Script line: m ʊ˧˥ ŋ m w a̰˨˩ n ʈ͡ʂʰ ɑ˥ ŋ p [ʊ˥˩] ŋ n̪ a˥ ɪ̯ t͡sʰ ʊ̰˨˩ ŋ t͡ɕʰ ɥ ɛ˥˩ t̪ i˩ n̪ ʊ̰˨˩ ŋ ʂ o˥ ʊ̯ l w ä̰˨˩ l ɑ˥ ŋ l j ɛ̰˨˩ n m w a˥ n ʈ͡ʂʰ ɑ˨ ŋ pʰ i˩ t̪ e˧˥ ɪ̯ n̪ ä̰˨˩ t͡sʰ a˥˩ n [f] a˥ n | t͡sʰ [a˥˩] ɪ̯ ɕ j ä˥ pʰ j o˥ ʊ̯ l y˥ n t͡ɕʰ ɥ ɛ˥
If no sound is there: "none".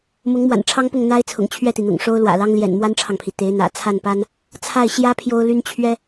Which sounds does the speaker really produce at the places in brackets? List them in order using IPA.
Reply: ʊ˥˩, p, a˥˩

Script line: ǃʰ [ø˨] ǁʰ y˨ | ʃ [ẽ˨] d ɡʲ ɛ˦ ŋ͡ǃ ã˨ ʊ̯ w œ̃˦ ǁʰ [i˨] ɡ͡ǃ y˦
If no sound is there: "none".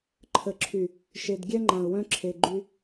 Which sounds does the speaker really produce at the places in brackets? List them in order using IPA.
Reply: ə˨, e˨, e˨

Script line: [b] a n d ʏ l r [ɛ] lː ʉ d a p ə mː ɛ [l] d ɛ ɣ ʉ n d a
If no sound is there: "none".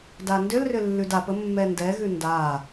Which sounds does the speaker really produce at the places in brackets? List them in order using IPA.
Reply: d, ʏ, n

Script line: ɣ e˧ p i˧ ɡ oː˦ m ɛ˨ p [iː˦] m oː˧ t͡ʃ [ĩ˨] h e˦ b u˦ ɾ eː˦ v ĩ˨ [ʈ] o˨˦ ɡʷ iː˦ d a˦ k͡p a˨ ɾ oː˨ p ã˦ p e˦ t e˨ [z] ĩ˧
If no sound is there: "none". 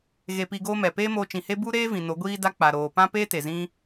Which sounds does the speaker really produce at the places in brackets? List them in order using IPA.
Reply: eː˦, ĩ˨, n, z

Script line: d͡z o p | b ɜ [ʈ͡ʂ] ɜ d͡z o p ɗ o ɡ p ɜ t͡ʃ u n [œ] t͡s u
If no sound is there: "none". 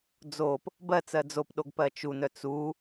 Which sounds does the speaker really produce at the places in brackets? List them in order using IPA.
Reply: t͡s, œ

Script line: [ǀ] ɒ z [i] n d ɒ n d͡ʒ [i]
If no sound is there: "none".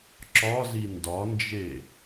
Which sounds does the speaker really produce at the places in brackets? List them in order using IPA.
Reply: ǁ, i, e

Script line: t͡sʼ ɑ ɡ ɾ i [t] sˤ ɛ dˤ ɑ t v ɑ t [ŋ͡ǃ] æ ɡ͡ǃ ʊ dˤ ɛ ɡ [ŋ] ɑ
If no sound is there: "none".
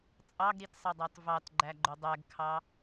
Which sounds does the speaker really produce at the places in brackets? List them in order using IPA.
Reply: t, ɡ͡ǃ, kʰ

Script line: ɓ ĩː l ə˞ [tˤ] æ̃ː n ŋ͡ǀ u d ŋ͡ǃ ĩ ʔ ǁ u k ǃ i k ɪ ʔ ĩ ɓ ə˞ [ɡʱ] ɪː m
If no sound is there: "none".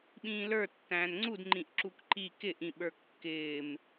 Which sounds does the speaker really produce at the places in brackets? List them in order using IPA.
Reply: tː, kː

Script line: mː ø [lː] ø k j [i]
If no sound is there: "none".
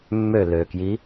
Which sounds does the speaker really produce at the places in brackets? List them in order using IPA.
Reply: l, i

